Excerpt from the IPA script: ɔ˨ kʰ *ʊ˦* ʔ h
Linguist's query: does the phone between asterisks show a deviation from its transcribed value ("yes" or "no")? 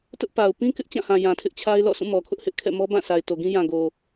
no